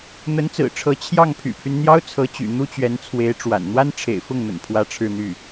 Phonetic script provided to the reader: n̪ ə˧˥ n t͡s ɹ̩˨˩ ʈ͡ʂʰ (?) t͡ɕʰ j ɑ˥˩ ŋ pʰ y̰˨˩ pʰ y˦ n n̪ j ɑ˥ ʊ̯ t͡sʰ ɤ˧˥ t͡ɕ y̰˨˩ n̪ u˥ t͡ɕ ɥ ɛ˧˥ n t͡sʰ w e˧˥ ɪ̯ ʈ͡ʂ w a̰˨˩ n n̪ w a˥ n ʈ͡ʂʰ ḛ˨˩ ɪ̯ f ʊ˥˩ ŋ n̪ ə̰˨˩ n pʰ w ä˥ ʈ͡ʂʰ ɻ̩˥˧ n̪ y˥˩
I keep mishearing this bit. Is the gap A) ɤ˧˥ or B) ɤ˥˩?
A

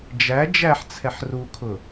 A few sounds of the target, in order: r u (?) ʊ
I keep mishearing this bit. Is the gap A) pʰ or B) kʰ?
B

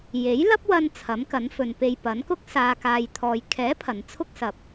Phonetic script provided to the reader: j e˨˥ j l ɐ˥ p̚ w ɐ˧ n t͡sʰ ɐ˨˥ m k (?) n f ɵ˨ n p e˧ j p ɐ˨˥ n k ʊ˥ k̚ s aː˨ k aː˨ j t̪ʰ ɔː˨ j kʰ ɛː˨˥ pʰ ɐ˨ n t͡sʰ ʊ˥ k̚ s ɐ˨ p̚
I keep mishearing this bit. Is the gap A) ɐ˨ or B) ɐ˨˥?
B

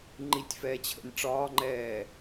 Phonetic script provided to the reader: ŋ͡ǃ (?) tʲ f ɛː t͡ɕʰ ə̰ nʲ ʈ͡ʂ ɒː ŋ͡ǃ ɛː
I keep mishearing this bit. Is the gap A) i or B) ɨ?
A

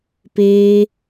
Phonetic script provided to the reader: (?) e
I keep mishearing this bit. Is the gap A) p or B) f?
A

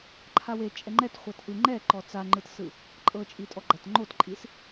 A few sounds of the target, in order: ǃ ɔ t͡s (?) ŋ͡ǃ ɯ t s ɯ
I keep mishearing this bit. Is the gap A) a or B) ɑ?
A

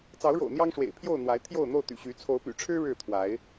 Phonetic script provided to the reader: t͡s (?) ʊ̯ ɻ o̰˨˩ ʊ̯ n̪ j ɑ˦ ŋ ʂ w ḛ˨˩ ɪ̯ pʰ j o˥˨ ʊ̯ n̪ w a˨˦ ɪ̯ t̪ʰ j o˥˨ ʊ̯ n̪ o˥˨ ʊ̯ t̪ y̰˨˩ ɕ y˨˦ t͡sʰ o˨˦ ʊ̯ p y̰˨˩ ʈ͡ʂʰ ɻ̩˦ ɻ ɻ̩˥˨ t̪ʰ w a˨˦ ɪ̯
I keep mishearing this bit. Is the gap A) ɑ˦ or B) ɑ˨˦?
B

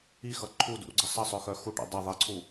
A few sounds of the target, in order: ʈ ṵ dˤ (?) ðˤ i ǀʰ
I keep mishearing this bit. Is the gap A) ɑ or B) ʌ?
B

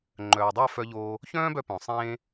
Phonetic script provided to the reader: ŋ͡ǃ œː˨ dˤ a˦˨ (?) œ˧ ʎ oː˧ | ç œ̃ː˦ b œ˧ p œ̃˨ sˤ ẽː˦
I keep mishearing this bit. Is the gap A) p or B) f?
B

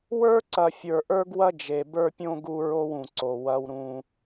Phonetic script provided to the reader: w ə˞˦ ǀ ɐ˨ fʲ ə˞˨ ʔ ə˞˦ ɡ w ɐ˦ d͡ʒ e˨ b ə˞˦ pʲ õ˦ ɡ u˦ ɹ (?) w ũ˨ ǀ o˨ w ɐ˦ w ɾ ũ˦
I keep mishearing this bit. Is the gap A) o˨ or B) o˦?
B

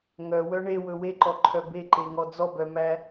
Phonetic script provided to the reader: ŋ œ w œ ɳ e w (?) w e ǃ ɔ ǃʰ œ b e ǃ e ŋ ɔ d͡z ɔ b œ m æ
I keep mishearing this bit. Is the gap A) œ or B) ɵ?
B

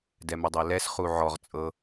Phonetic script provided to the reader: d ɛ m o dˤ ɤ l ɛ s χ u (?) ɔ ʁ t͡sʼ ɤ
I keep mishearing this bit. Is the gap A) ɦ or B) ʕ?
B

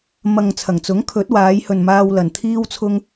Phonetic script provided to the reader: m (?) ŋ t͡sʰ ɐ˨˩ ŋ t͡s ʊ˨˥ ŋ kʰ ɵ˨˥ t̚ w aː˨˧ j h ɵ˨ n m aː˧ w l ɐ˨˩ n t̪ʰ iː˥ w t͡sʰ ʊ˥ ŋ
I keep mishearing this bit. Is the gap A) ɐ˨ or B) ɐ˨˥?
A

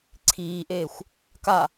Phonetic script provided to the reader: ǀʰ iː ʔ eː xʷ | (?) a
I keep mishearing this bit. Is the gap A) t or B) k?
B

